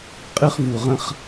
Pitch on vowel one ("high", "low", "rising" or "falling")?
high